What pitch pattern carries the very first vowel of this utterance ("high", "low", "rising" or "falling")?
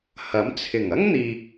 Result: rising